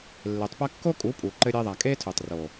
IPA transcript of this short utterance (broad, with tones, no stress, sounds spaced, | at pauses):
lː e˨ tˤ p ɐ˦ kː o˦ kʼ u˨˦ pʼ u˨ ǃ ɘ˧ ɾʲ e˧ ðˤ a˨ kʼ e˦ tʰ u˨ tˤ r o˨